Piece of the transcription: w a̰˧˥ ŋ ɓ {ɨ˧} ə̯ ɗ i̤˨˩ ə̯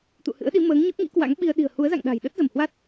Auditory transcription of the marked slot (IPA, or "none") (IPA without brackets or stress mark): i˧